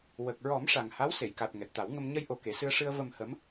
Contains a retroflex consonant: yes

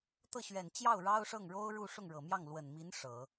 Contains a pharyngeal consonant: no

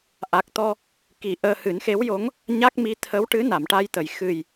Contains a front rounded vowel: no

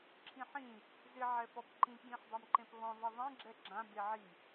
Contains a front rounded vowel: no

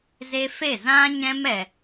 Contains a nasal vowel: yes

